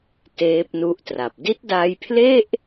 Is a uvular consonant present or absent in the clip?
absent